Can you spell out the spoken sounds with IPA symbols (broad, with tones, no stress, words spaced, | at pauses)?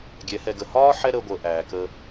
ɡʲɛ˨˦hɛ˧ɡə˧ hɒː˦ ħɛ˦ɾəː˧ɡʷəː˨ ʔæː˨kəː˧